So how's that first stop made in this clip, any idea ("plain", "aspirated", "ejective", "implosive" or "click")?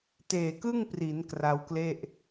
plain